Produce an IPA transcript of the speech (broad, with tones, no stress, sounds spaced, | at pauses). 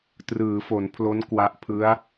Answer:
t r ɯː˩˦ f o˩˦ n pʰ l o˦˥ n k w a˦˥ ʔ pʰ ɯ˦˥ a̯